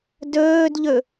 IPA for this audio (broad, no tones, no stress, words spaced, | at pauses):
dɵːdʎɵ